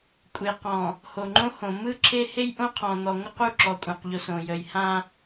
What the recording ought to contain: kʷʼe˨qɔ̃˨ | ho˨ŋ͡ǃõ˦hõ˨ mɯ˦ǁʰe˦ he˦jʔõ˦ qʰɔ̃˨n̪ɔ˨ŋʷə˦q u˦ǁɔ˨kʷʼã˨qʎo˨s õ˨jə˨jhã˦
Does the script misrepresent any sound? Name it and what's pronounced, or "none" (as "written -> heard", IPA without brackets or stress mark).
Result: u˦ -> u˦˨